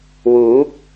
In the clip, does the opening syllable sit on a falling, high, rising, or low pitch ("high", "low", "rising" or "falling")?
rising